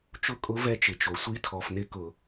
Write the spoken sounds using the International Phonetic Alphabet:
t͡ʃʊ˦˥ kʼʊ˦˥ vɛ˦˥t͡ʃɪ˩t͡ʃo˩sʷi˦˥ tʰɔ˧˩˧fnɪ˦˥kʊ˧˩˧

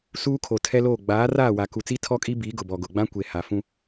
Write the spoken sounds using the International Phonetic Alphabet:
suː˦kʰo˨tʰɛ˦loː˦˨ ɡ͡baː˨˦raː˦˨wa˨ ku˨t͡si˦ tʰɔ˦kʼi˦ biː˨˦ɡʊ˨bɔ˨ ɡʊ˨ɡ͡bã˦kʷe˨ ha˨fũ˦

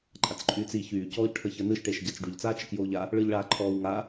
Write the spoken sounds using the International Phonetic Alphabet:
ǃʼat͡sǃʼyːt͡si çyː cɔːʎʈʰəçəːnɯʃ ʈeʃɟat͡sɖyʎ t͡saːt͡ʃəkjoːʎa | ɭɯʎɭaːǃʰɔːwŋa

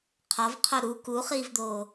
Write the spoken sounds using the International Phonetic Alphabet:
qʰɒvqʰo ɾu kuχiːvd̪oː

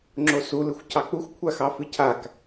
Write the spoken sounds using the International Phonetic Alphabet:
ŋ͡ǁosu lɨxʷcʰɑk͡puxʷ kʷʰaxɑfɨcʰak

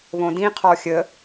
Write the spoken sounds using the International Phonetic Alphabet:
βõdĩ qʰɔxʲə

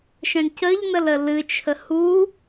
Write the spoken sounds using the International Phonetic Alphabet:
ʃɛ̃ɳcəʎnəl əlɨt͡ʃʰə hu

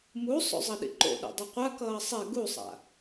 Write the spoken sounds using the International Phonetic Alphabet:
musˤo̰zˤʌɗḭ ǃo̰ɗḛdˤi qʷakʌː sˤe ɡusˤa̰

